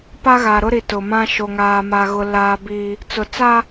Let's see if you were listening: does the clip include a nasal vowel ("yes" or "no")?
yes